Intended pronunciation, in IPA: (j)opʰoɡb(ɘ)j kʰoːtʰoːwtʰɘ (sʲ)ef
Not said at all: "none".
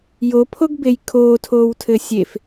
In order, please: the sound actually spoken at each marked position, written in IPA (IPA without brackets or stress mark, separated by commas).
j, e, sʲ